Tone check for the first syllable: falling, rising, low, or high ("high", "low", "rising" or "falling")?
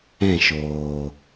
falling